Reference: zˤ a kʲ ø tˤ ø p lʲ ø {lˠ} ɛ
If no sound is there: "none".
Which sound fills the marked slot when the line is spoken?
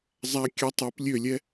lʲ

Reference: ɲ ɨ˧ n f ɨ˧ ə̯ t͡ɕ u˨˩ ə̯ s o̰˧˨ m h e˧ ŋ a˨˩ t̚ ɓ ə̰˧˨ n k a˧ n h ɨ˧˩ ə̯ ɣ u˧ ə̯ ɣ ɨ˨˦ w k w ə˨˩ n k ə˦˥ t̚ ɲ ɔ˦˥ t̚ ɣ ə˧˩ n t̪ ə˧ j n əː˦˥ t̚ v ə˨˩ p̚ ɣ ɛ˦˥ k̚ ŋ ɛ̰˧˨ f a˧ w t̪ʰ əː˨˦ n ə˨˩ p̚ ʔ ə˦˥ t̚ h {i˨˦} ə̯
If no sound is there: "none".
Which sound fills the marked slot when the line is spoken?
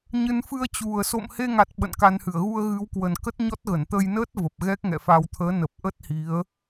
i˨˦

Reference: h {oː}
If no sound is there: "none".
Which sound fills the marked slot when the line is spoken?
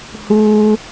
uː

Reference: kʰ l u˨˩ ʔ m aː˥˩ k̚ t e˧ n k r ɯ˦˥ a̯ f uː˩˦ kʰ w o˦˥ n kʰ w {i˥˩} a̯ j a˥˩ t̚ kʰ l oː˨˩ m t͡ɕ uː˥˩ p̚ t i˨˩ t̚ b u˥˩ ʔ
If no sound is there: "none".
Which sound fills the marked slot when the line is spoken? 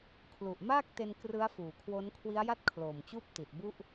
i˦˥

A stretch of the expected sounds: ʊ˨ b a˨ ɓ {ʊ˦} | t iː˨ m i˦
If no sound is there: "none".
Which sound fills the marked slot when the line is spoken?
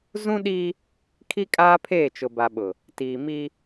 ʊ˨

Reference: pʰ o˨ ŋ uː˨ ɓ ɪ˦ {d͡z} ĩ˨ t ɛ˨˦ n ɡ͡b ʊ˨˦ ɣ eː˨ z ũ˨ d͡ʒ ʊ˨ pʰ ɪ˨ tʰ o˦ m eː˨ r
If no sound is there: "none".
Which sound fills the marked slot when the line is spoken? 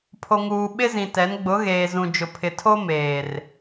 z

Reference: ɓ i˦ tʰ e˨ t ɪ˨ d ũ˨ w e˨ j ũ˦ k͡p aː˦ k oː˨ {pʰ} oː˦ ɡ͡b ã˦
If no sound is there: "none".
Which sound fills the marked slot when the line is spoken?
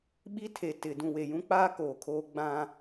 kʰ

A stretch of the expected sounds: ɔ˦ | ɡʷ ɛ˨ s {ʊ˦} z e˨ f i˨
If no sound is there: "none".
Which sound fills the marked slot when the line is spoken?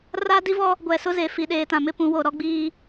ʊ˦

